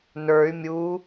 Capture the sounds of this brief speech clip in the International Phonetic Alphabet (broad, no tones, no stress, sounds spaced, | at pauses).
n ə˞ y̯ mʲ u